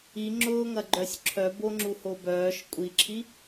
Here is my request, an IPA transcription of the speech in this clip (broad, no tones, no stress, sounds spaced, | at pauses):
i ŋ͡ǁ ʊː ŋ ɐ ɡ͡ǃ œ sʲ ǁʰ œ b o ŋ͡ǁ u h o b œː ʃ kʷʼ i ǁʰ i